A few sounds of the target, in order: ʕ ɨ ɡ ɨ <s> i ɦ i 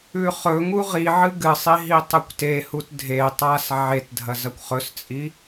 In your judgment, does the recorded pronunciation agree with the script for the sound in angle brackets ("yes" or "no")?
no